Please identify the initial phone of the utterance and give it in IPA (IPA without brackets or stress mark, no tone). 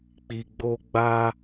k͡p